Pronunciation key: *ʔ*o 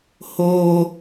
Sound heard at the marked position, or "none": h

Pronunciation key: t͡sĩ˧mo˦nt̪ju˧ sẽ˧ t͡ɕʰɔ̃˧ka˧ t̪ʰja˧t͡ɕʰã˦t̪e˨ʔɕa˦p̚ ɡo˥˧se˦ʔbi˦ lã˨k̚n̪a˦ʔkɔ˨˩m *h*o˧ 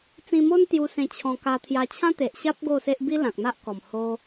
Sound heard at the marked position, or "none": h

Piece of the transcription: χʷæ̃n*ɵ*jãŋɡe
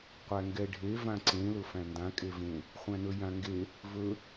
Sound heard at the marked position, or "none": ɵ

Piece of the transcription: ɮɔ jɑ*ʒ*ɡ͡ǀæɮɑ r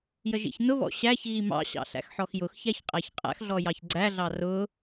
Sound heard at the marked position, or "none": ç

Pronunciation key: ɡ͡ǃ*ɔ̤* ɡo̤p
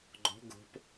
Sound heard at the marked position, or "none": ɔ̤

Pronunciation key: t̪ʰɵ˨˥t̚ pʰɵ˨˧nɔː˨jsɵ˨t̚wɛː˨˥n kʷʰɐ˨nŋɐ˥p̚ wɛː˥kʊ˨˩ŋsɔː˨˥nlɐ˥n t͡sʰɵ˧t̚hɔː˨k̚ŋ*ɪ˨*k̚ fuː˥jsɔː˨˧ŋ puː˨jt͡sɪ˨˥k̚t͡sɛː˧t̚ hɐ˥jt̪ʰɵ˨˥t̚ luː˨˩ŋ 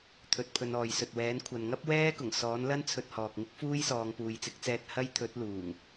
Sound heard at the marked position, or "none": ɪ˥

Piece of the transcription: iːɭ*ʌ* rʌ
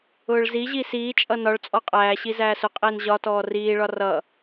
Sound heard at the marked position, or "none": ɒ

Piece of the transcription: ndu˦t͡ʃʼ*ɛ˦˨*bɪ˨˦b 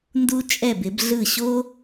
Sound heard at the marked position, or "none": ɛ˦˨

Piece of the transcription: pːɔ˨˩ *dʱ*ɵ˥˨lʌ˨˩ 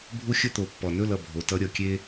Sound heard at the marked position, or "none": n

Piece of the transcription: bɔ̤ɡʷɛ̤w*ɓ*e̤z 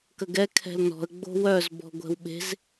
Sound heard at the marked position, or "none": ɓ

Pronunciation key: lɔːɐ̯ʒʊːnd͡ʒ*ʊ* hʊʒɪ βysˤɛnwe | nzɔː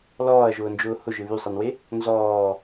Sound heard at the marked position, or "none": ʊː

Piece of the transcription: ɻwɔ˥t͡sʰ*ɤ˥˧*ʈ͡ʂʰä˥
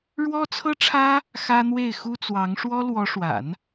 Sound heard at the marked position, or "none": ɤ˥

